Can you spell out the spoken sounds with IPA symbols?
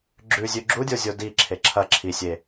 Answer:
ɡ͡ǁ ʉ zʲ ʉ ɡ͡ǁ u dʲ o zʲ o d i ǁʰ e ǁʰ ɐ ǁʰ i sʲ e

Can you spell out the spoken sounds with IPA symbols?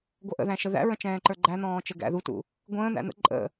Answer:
ɡʷ ʌ ʔ ə̰ ð æ̃ ʃ ə ð æ̰ ɹ ə̃ t͡ʃ ɛ̃ː ǃ ə˞ ɡ͡ǃ æ n̪ ɔ̃ː t͡ʃ ə ɡ æ̰ ð u t ṵ | ɡʷ ə̃ː n̪ æ̰ n̪ ə̰ ǃʼ ə̰

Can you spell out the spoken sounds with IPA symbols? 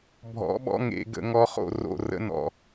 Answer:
bʱ ɔ̰˩˥ ɓ ɔ̰˧˥˧ ŋ ḛ˨˩˦ ɡ ə̰˨˩˦ ŋ ɔ˧˥ χ o̰˦˨ r o̰˦˨ r ə̰˧˥ n ɔ̰˨

